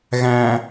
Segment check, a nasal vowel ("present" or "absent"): present